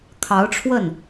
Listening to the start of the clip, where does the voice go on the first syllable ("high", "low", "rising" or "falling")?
rising